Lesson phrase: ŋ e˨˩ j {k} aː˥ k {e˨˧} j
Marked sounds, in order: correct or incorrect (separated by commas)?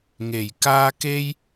correct, incorrect